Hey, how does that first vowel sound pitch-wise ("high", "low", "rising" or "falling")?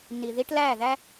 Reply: low